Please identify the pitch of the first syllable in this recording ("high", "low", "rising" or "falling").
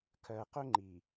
low